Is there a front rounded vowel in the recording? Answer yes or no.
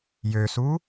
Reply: yes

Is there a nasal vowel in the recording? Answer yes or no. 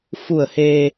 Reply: no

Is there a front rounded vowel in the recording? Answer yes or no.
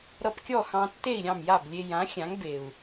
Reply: no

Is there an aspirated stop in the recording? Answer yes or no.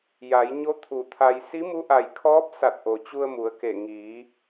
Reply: yes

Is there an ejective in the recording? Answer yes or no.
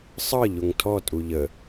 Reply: yes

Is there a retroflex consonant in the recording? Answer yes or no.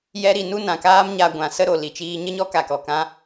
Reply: no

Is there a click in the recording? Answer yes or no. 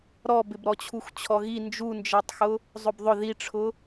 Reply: no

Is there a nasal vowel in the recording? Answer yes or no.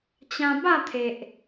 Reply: yes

